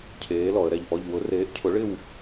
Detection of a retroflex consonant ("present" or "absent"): present